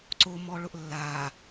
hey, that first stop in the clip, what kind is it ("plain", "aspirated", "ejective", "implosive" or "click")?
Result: click